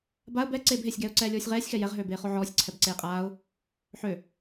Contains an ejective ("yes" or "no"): yes